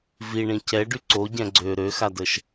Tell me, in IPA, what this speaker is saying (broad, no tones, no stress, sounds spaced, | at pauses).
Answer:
v i ɳ ĩ c ɛ ɖ y ǀ o ɟ ɛ̃ ɡ͡ǀ ø ɾ ø x a d ə ʃ